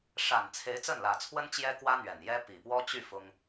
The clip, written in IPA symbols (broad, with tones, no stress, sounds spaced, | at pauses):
ʂ a˨˩ n t͡sʰ e˧˥ ɪ̯ t͡s ə˥˩ n l ä˨˩ t͡sʰ w ə˥ n t͡ɕ j ɛ˥ k w ä˥ n̪ ɥ ɛ˨˩ n j ɛ˥ p i˨˩ p w ɔ˥ t͡ɕ y˥˩ f ʊ˥ ŋ